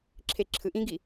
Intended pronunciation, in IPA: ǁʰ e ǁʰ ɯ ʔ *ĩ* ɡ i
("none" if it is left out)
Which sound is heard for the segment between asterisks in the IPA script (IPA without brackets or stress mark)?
ĩ